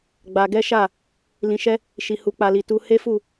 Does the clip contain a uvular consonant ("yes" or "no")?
no